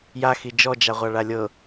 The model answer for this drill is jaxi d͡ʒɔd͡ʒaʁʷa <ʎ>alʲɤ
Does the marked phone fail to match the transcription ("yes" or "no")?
yes